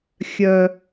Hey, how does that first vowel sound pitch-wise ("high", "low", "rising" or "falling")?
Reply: low